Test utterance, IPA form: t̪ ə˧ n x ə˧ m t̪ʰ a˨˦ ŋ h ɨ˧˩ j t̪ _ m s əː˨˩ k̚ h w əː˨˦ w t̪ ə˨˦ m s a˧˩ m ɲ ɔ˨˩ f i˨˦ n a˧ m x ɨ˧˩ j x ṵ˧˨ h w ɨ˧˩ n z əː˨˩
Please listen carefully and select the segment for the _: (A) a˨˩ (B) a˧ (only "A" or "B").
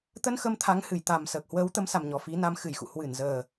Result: A